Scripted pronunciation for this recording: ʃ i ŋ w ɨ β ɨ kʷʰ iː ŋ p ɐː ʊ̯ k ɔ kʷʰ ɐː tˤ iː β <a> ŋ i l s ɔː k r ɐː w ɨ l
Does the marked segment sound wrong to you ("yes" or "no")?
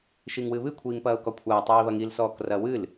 yes